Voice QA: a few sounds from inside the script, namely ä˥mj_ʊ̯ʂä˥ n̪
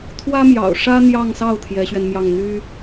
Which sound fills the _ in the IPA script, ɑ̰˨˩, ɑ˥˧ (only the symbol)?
ɑ̰˨˩